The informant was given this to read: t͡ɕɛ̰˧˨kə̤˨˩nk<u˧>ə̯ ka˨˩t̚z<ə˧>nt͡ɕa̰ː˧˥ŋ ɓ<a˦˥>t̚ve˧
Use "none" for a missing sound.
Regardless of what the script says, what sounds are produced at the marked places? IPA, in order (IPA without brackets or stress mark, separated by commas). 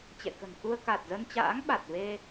u˧, ə˧, a˨˩